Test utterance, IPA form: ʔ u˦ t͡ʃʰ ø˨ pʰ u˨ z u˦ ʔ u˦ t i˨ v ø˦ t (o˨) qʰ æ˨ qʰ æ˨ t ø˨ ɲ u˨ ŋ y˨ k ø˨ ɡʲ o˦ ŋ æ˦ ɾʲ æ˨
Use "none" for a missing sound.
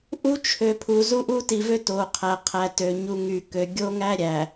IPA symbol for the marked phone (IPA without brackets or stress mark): o˨